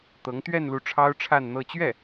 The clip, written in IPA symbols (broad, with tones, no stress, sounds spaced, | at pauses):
t̪ ɤ˧˥ ŋ t̪ ɥ ɛ˥˧ n l u˥˩ ʈ͡ʂʰ ɑ˥ ʊ̯ ʈ͡ʂʰ a˥˧ n n̪ ɤ˥˧ t͡ɕ ɥ ɛ˥˩